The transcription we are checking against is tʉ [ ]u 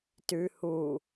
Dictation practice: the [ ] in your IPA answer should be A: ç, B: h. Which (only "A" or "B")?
B